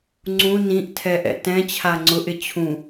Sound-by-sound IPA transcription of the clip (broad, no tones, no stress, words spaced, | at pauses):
ŋ͡ǀũ nĩʔtʰɛ ʔɛ̰tɛ̃t͡ɕʰa ŋ͡ǀʊʔɪ t͡ɕʰũ